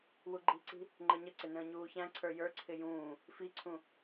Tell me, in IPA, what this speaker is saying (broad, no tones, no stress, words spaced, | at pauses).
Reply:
wuɡ͡ǃi̤ǀi̤ | ŋ͡ǃəɲəǀɪ nə̃ːɲuːçæ̃ǀʰə˞ jə˞ǀʰɪ jũː | fiǀʰũ